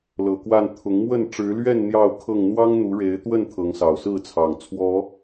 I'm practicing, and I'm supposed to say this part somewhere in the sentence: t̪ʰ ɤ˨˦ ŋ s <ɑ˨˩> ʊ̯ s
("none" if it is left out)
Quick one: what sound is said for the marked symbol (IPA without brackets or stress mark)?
ɑ˨˩